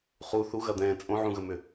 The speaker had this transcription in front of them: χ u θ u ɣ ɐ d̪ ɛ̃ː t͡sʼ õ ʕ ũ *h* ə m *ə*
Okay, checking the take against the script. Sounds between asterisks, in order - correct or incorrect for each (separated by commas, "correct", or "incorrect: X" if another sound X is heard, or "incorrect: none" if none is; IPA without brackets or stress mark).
incorrect: ɣ, incorrect: ʏ